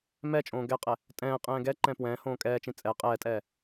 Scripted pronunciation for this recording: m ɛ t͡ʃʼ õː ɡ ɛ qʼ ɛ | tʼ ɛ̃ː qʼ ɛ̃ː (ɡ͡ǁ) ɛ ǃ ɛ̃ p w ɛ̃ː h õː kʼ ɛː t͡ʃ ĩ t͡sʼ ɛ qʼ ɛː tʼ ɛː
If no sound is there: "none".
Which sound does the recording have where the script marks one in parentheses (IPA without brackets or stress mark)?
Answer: ɡ